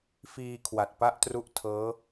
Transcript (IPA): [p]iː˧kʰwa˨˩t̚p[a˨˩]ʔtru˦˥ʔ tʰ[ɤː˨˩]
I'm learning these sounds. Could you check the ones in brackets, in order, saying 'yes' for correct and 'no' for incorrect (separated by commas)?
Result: no, no, no